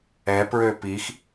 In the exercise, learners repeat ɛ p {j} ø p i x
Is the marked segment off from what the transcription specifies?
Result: yes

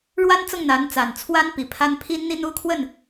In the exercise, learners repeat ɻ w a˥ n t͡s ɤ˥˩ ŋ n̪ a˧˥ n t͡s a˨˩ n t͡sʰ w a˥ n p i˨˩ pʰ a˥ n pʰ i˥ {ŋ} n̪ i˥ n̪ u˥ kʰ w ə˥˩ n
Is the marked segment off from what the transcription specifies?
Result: yes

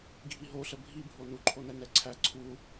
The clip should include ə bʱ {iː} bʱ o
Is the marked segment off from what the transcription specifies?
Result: yes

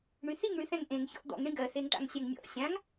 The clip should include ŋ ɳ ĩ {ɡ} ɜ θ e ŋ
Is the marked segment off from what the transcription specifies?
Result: no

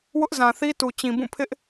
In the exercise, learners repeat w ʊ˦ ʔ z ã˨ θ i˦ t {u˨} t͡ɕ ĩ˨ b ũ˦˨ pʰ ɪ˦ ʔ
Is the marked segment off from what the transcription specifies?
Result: no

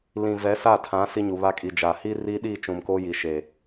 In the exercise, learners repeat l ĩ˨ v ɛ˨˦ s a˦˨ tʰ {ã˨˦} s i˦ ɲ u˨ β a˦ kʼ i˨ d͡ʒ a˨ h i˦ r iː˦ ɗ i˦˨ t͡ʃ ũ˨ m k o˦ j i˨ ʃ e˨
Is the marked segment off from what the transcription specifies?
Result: no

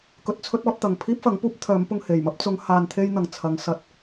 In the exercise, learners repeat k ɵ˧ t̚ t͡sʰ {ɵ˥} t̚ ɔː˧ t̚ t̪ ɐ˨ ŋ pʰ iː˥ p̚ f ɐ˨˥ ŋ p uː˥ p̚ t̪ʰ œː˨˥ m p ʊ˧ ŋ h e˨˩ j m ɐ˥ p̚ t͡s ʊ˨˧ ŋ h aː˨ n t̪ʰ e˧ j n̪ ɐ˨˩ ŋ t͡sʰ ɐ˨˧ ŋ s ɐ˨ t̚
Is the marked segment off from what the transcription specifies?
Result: no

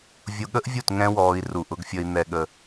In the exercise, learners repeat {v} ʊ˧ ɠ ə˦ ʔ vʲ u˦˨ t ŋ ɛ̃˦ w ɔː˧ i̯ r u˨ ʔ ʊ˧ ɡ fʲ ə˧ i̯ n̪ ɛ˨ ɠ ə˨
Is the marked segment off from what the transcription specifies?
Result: yes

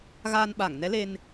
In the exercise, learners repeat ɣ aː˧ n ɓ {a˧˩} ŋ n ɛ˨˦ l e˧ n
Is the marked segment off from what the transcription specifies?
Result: no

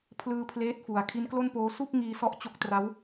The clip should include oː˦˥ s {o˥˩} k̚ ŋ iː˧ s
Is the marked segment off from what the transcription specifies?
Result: yes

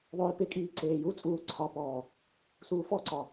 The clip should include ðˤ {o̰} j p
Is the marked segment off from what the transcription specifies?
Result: yes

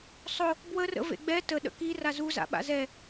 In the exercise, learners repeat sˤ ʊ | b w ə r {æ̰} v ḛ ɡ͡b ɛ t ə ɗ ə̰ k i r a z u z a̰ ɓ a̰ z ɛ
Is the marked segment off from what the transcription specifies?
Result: yes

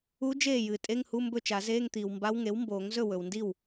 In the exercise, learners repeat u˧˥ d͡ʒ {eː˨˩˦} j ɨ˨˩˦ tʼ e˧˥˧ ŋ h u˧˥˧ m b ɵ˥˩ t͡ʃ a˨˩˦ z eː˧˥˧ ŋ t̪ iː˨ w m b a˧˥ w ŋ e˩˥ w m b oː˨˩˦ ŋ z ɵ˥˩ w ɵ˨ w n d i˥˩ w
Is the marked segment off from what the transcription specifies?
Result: yes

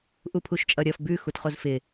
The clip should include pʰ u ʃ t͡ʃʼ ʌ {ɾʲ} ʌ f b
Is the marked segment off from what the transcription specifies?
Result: no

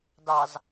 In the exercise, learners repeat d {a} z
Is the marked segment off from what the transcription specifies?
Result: yes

